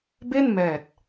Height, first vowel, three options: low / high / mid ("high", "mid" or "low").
mid